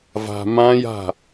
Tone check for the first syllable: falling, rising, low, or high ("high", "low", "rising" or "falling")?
low